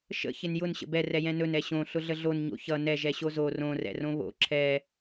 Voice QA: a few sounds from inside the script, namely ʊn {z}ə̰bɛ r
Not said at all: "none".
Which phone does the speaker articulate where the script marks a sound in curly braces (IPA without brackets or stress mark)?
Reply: ɕ